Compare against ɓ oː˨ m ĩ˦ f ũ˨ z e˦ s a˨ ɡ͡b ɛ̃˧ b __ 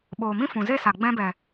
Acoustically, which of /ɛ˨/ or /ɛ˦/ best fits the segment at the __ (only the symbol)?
ɛ˨